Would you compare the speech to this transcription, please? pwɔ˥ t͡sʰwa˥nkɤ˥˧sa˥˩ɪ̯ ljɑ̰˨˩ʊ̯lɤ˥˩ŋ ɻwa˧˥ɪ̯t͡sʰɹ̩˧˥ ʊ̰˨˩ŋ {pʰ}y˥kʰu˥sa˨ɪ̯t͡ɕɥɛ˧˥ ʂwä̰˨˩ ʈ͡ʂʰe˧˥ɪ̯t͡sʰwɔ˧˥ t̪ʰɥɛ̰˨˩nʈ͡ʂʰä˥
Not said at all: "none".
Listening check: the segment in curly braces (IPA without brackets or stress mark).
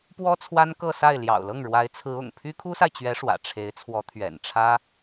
pʰ